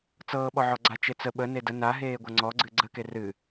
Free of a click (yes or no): no